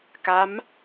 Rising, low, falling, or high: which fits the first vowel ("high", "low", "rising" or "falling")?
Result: rising